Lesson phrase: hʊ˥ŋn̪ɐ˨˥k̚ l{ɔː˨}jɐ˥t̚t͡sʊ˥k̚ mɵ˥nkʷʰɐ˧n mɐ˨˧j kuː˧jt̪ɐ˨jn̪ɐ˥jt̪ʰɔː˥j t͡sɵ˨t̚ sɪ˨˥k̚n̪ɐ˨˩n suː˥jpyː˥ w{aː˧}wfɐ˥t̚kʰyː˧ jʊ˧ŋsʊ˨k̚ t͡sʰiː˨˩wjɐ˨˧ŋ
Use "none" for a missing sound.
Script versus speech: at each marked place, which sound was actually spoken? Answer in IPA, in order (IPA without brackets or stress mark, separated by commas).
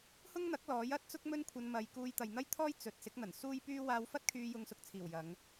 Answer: ɔː˨˥, aː˧